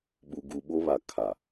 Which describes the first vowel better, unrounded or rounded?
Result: rounded